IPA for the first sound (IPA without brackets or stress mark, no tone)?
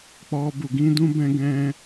k͡p